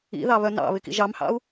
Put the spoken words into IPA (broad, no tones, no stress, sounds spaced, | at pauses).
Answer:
ḭ ð ɑ β œ n ɑ̰ β ɪ k ḭ ʒ ɑ m h ɑ̰ u̯